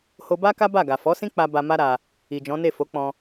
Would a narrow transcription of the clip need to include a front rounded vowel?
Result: no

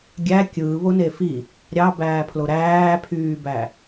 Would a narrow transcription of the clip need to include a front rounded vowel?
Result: yes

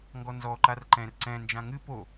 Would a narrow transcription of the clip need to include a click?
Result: yes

